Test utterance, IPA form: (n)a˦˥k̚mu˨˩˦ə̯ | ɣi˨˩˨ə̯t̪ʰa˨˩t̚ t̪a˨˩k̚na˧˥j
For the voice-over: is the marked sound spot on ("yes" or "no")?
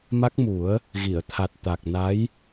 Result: no